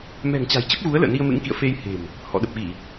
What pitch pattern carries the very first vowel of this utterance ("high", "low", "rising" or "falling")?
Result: low